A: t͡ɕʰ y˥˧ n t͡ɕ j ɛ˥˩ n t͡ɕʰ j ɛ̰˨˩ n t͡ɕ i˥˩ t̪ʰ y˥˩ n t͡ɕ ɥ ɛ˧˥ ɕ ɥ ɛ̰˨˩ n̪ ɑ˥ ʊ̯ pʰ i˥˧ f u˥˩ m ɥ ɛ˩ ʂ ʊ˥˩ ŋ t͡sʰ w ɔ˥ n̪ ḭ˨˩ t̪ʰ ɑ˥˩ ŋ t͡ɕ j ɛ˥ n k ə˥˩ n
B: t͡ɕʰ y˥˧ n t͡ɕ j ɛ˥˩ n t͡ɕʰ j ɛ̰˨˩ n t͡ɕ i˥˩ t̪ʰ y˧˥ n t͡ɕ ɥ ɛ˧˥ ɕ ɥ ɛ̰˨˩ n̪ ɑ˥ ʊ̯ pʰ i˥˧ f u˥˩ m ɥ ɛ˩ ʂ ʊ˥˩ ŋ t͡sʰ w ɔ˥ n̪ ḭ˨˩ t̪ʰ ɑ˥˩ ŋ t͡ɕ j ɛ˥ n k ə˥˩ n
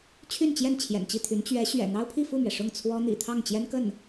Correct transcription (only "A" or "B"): B